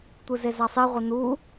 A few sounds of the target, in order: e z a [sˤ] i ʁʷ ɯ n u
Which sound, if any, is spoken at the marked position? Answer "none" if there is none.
sˤ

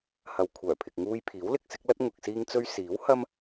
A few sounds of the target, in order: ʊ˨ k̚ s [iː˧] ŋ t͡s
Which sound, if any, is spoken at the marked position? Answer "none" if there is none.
iː˧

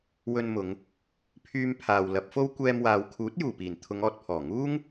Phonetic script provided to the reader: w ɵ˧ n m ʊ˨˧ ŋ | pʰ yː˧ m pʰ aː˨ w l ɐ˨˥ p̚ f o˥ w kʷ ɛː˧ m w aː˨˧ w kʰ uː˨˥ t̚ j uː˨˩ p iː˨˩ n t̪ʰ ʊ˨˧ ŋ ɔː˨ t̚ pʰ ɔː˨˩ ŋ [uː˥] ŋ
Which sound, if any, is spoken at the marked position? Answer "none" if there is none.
uː˥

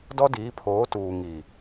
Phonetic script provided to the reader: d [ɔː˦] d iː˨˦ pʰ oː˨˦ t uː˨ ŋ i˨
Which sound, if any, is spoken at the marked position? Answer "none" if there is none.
ɔ˦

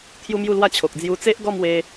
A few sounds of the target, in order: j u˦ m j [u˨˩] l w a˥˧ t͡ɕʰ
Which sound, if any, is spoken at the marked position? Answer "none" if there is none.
u˥˧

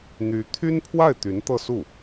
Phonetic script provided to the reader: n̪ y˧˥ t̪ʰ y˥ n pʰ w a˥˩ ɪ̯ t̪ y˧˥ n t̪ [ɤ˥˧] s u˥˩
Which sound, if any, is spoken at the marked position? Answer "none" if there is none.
ɤ˥˧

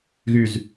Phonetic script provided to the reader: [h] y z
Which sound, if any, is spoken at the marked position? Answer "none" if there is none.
ɣ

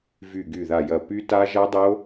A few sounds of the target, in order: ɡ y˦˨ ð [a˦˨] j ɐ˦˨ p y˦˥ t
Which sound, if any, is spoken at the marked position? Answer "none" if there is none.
a˦˨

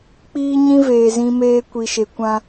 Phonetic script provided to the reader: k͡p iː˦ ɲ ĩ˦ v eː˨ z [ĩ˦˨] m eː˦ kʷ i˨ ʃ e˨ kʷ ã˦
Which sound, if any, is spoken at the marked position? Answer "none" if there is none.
ĩ˦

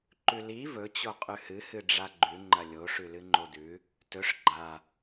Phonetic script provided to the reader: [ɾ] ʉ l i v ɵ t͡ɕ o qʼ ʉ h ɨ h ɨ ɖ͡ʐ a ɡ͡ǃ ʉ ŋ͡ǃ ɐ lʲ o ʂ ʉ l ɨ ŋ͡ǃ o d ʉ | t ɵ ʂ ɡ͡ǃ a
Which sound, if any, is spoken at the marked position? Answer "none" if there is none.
ǃ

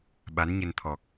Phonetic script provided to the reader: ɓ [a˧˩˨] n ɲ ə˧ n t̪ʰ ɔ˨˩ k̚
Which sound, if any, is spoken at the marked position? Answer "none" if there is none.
a˨˦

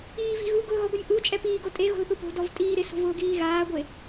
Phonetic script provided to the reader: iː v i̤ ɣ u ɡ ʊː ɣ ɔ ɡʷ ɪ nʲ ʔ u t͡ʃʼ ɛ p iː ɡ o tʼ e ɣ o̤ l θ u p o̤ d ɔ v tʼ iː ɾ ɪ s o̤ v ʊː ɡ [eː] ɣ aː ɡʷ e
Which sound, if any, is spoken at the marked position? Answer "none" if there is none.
iː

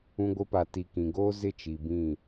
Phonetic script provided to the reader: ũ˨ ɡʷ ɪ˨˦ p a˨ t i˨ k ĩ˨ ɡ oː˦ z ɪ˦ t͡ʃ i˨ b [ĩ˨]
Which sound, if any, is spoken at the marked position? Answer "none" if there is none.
ĩ˦˨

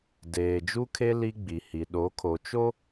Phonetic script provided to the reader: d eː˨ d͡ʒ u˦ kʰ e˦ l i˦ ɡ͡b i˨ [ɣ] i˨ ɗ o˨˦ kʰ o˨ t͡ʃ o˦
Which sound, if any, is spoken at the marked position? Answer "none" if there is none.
h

